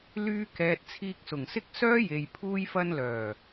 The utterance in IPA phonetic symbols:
lyː˧ kɛː˨t̚ t͡sʰiː˧k̚ sʊ˨˩ŋsɪ˥k̚ sœː˥je˨j pʰuː˧jfɐ˧nlœː˨˩

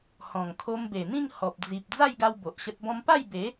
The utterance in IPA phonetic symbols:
hɔ̃˨˩ŋkʰo˧mbe˨˩n̪ĩ˥˧ŋ hɔ˨p̚ d͡zi˨p̚ d͡za˥˧jɡa˧w bo˨ʔɕə˦t̚bɔ̃˦m pa˥˧jbe˨˦

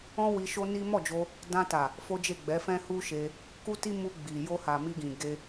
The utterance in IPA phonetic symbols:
ɔ̃˦ wi˧ʃo˦ni˦ mɔ˦˨d͡ʒo˧ | dã˧ta˨ | fo˦d͡ʒe˦˨ ɡ͡bɛ˨˦fɛ̃˦ hu˦ʃe˧ | ku˦ti˦ mu˧ ɡ͡bi˨ jo˧ha˨ mi˧ɡĩ˨ ɡe˧

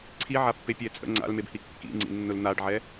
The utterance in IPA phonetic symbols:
ǀʰiʕapːepʲɛ t͡sʼə̰ ŋ͡ǀa̰lmebhi kːḭŋ͡ǀḭnːʊl n̪aɖʕɛ

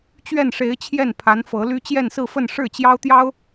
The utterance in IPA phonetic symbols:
t͡ɕɥɛ˥˩nʂe˧˥ɪ̯t͡ɕʰjɛ˥˩n pʰa˧˥nfɤ˧˥ly˥ t͡ɕjɛ˥˧nsɹ̩˥˧fə˥˧n ʂɻ̩˥˩t͡ɕjɑ˥ʊ̯t̪jɑ˥ʊ̯

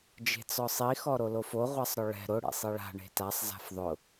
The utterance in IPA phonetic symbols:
d͡ʒe̤t͡sɔsˤi xɔɾolofo ʁʷasˤɾʊɭɛ̤ ɾʊ ɽḛsˤiɭa̤ ɳe̤tasˤ za̤fðˤʊ

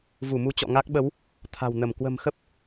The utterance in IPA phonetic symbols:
vu˧˩mu˧t͡ɕɔ̰˧˨ ŋa˦˥k̚ɓə˨˦w | t̪ʰa̤˨˩w nə˧˩m kwə̤˨˩mxə˦˥p̚

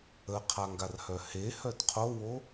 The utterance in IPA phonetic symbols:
əqʰaŋɡarhœ hehœd qʰowo

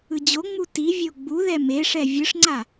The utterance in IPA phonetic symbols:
ɯd͡ʑoŋ͡mu tivʲo ɡ͡buðɛ meʂɛ vʲɯʂŋ͡ǀa

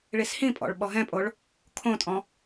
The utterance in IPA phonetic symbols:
ɭishĩpʼɔ̰ɭ ɓɔɦɛ̃pʼoɭ | kʰõtʼɔ̃

